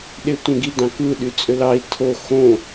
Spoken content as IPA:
ɗ e tʷ ẽ ɡ i d ɑ̃ k ɯ ɗ y t͡sʼ ø l ɑ i̯ tʰ o x õ

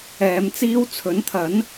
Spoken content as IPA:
ɛː˨˧ m t͡s iː˥ w t͡sʰ ɵ˨˥ n t̪ʰ ɐ˨˥ n

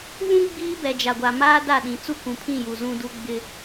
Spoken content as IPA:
β ũ˦ ɡ͡b iː˦ b ɛ˨ d͡ʒ a˨ ɡʷ a˨ m aː˦ d a˦˨ ɗ ĩ˨ t͡s u˦ kʷ ũ˨ pʰ ĩ˦˨ j u˨ z ũ˦ d u˦ ɡ͡b ɪ˦

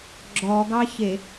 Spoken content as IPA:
ɡ͡ǁ ɔ ɡ ɑ ç e

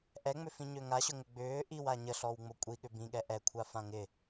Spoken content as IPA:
ʔ ɛ ŋ͡m ʏ f ĩ ɲ ø ŋ a ɕ ʊ ŋ ʏ ɡ͡b ʏː ʔ i w a ɲ ə ɬ ɔ w ŋ͡m o kʷʼ i ɠ ʏ b ĩ ɠ ɛ ʔ ɛ kʷʰ a f ã ŋ ɪ

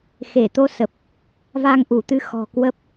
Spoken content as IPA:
x e˧˩ t̪ o˧ s ə˨˩ p̚ | v a˧ ŋ ʔ u˧˩ t̪ ɨ˧ x ɔ̤˨˩ k w ə˦˥ p̚

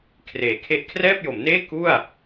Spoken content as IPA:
kʰ r eː˩˦ kʰ e˦˥ ʔ kʰ r ɛː˥˩ p̚ j o˩˦ m n eː˥˩ k u˥˩ a̯

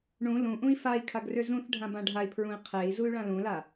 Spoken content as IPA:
ɳ ũ l ũ ʔ ũ i̯ f a i̯ kʰ a ɡ r ʏ z ũ θ ɖʱ ã b ã ɖʱ a i̯ pʰ ɹ ũ i̯ qʰ e i̯ z u y̯ ɭ ã l ũ l a

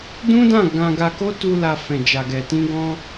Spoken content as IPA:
d ũ˦ d ã˦˨ ɡ ã˧ ɡ a˧ k o˦ t u˧ l a˨ f ɛ̃˨ d͡ʒ a˨ ɡ ɛ˨ t ĩ˧ ɡ ɔ̃˧

